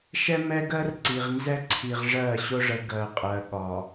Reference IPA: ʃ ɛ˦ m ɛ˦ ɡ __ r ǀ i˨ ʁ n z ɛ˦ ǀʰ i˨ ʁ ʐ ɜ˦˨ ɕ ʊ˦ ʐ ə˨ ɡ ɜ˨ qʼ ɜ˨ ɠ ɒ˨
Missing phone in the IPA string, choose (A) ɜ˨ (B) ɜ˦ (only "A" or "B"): B